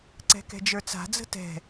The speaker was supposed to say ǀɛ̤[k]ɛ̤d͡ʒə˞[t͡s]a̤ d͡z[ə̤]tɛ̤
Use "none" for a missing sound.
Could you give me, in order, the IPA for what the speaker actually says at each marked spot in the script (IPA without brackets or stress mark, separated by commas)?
k, t͡s, ə̤